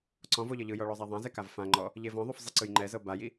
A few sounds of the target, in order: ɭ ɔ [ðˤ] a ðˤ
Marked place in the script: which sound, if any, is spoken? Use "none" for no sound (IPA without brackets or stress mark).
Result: zˤ